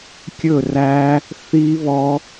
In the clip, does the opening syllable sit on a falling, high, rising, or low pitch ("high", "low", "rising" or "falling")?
falling